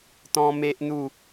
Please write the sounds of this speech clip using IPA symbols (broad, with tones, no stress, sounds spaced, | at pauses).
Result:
t̪ ɔ̃˦ m e˦ ʔ n̪ u˥˧